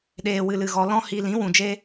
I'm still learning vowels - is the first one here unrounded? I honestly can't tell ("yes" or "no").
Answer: yes